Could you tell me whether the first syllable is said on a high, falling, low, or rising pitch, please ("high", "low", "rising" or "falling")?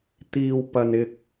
high